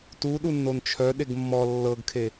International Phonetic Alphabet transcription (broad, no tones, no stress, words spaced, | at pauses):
tu ɗunːont͡ʃʰœ ɗeɡmːɔ lːɤɡkʰe